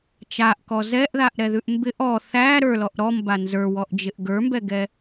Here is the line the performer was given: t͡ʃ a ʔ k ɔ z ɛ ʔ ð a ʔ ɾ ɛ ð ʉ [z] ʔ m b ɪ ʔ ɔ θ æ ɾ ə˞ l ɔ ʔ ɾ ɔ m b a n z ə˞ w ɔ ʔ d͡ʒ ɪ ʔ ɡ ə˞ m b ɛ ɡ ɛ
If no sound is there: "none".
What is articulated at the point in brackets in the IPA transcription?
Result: none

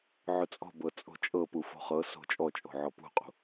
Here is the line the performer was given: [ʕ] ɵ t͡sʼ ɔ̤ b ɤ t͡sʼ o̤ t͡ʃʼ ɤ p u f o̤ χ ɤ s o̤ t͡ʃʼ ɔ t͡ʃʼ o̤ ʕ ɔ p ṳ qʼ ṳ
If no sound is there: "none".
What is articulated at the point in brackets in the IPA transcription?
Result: ʕ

